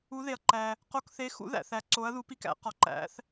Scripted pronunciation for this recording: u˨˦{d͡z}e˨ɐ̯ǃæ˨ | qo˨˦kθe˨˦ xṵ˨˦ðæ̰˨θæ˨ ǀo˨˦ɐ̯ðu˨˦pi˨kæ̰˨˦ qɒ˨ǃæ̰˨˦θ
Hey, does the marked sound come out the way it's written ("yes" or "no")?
no